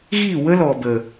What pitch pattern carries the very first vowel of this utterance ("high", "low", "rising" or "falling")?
falling